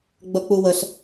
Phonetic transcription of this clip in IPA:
ɡ͡bʌk͡puwəɬ

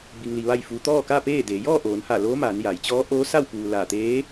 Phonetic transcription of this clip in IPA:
bi˧ŋli˧ ʋa˥˨jfuː˧ t̪ɔː˥˨kaː˥˨peː˥˨deː˩˧ jɔː˥˨ʔoː˩˧nha˧˩ loː˧˥maː˩˧n ja˩˧j t͡ɕɔː˧˥ʔoː˧˥ sa˥˨wpuː˩ laː˧˩t̪eː˧˥

